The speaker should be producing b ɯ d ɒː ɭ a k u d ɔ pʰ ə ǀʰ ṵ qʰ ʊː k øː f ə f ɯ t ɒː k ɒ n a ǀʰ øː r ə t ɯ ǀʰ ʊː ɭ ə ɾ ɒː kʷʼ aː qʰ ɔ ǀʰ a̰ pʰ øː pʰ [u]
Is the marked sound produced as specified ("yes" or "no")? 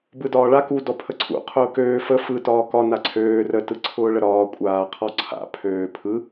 no